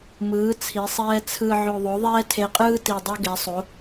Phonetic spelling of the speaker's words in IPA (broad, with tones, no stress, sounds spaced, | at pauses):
m ɯː˩˧ t͡sʰ i˩˧ sˤ ɛː˧ t͡sʰ ɯ˨˩ ʕ o˨˩ ðˤ o˩˧ ðˤ ɛː˧ tʰ e˨˩ qʼ ɯː˧ t i˨˩ dˤ o˧ ɡ ɛ˩˧ sˤ o˩˧